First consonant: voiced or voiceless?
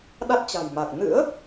voiced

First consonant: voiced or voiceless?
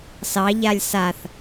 voiceless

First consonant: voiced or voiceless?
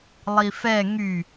voiced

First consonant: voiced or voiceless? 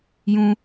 voiced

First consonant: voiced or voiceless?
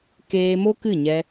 voiceless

